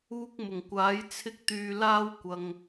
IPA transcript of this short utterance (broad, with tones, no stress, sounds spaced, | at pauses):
uː˧ k̚ m ʊ˨˩ ŋ kʷ aː˨˥ j t͡sʰ ɪ˧ k̚ t̪ yː˨ l aː˥ w kʷ ɐ˧ ŋ